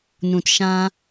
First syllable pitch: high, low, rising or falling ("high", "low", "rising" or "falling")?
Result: low